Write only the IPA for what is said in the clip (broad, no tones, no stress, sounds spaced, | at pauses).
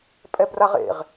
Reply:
pʼ ɛ b r a ʁ ḛ ʁ